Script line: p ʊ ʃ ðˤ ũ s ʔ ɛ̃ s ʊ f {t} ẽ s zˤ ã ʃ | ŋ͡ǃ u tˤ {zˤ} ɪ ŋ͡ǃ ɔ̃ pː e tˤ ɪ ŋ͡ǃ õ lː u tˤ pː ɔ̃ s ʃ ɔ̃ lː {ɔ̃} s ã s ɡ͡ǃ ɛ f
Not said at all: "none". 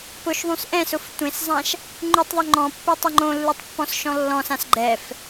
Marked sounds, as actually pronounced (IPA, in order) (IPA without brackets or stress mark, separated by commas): tʷ, ðˤ, ɔ̃